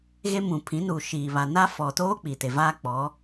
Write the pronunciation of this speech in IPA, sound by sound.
ɣ e˦ m ũ˨ pʰ ĩ˨˦ n uː˨ ʃ iː˨ β a˨ n a˦ f ɔ˨ t oː˦ k͡p i˨ t e˨ v aː˦ k͡p ɔ˨˦

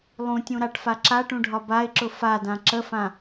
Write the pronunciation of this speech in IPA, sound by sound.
lˠ ũ tʲ ũ ɾ a ʈ f a ǁ a ʈ ũ ɖʱ ɒ b a ɪ̯ ǁ ʊ f a d ã ǁ ə f ã

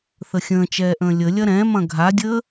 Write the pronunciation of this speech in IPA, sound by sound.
θ ə xʲ ə̃ː t͡ʃ ɛː ʔ ə̃ː lʲ ə lʲ ɐ ɾ ɛ̃ m ɐ̃ ɡʱ a dʲ əː

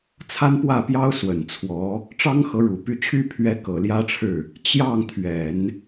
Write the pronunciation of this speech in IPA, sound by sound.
t͡sʰ a˥ n p w ä˥˩ p j ɑ˥ ʊ̯ s w ə˨˩ n t͡sʰ w ɔ˧˥ | ʈ͡ʂ ɑ˥ ŋ x ɤ˧˥ ɻ u˨˩ p y˥˧ t͡ɕʰ y˥˩ pʰ ɥ ɛ˧˥ k ɤ˨˩ l j ä˥ ʈ͡ʂʰ ɻ̩˥˩ | t͡ɕ j ɑ˥˩ ŋ t̪ʰ ɥ ɛ˨˩˦ n

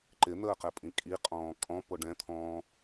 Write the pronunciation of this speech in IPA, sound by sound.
ǃ ɪ n̪ əː q ɛ pʼ ĩ kʼ i qʼ ɔ̃ː kʼ ɔ̃ p o ɖ ɛ̃ t̪ʰ ɔ̃ː

